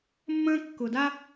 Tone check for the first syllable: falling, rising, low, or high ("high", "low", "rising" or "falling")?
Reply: high